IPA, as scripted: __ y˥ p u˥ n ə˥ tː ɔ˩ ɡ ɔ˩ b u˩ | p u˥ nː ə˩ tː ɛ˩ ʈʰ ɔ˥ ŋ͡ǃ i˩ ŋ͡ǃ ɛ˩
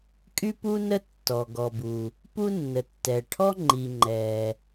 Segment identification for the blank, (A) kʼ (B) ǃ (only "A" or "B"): A